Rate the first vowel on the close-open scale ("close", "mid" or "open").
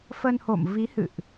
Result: mid